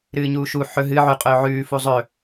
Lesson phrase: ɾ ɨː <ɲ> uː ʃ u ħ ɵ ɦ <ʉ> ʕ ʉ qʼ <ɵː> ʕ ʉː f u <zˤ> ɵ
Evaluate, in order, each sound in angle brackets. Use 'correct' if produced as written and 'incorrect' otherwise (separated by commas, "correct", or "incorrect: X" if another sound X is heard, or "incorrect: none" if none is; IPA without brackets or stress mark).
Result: correct, incorrect: ɨ, correct, correct